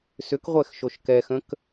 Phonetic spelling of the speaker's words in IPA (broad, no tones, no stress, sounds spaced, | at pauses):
s ʏ k ʁʷ ɛ x ʃ o ʃ k ɛ x ə̃ k